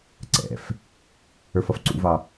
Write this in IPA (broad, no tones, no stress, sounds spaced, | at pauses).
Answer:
ǀ ɛ̰ f | ə˞ f ʌ f ǀ ṵ v ɑ